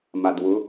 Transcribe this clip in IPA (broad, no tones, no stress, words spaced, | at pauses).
madwʊ